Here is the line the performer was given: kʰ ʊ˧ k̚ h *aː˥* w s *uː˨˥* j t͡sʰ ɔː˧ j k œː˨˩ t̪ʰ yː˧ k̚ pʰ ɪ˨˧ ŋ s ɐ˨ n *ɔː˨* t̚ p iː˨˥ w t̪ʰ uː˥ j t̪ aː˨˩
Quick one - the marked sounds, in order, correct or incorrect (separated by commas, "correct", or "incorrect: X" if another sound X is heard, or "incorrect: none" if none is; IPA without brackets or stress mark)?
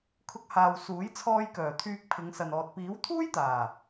incorrect: aː˨, correct, correct